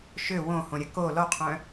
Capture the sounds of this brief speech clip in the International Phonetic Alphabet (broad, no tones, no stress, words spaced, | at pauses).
ʃø wõhõɾʲɐ ko lɔqʰœ̃